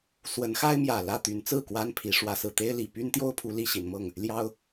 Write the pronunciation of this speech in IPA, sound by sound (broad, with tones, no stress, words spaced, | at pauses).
swə˨˦nxa˦ɪ̯mjä˨˩ lä˥˨t̪y˨˦nt͡sɹ̩˥˨ kwa˦npʰi˨˦ ʂwä˨˦sɹ̩˨˩ t̪e˦ɪ̯li˨˩ py˦nt̪jo˦ʊ̯pʰu˨˦ li˦ɕi˨˦nmɤ˥˨ŋ | ljɑ˦ʊ̯